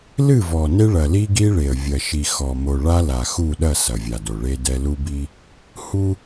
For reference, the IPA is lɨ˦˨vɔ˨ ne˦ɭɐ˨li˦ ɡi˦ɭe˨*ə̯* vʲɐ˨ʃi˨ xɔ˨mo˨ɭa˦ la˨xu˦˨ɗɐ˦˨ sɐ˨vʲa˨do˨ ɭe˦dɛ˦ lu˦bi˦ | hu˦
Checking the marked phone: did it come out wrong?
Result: no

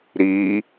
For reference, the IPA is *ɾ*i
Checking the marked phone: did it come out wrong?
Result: no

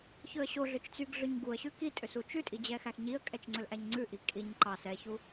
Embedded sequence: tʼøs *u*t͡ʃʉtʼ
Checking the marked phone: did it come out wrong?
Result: no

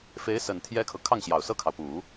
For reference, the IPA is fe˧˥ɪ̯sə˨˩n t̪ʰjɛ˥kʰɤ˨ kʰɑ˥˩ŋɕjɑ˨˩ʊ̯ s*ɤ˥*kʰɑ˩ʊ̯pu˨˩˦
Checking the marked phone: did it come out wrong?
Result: yes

